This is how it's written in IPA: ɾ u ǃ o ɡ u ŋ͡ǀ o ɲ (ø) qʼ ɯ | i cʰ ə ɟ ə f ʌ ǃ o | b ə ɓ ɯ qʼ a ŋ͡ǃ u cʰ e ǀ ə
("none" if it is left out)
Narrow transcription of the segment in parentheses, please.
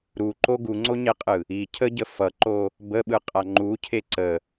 e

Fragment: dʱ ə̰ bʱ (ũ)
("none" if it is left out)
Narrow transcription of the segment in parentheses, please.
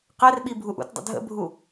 u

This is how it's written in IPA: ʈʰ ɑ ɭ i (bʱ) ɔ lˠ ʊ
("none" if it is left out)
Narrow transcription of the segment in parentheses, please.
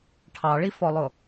f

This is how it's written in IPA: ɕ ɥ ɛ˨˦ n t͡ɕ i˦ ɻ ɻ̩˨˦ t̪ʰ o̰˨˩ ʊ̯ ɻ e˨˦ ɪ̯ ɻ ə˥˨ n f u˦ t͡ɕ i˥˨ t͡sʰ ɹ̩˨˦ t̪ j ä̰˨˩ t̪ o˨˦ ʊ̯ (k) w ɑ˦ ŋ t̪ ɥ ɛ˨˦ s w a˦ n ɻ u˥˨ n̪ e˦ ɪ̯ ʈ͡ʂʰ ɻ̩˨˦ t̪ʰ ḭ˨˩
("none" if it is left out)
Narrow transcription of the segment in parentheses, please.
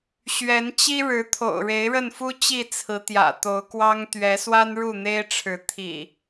k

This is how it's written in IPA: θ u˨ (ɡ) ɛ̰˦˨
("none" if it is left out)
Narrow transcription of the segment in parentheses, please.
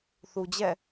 d͡ʑ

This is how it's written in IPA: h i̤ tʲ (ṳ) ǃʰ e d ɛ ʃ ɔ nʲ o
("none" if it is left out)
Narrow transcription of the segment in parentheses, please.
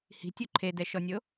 u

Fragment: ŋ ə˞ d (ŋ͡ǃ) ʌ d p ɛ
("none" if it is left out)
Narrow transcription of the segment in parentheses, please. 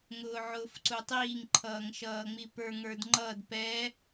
ŋ͡ǃ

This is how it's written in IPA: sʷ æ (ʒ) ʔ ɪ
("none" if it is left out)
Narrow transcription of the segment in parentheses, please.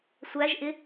ʒ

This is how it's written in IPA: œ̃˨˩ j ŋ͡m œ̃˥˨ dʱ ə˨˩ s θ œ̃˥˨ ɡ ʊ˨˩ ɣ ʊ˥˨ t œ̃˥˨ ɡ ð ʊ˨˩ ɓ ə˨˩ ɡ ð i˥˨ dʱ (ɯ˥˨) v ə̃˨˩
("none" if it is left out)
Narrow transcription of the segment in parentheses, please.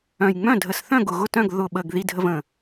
ə˥˨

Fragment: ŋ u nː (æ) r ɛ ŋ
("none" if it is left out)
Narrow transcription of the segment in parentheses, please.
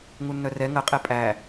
œ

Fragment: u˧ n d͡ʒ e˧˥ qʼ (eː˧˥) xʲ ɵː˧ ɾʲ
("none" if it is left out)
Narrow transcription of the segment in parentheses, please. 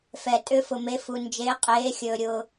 eː˧˥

